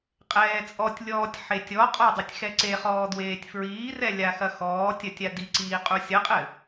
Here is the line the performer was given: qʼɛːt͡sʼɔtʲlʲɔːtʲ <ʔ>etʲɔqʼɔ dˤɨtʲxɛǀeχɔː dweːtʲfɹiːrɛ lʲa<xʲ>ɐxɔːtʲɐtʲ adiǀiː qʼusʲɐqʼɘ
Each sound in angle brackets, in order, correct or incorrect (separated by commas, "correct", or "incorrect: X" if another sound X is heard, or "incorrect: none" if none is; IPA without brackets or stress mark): incorrect: ħ, incorrect: x